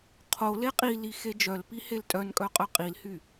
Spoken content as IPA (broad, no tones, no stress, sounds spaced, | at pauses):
qʰ o l e qʼ i l i x e d͡ʒ œ l p i h e l tʼ œ n kʼ œ qʼ œ qʼ i l h y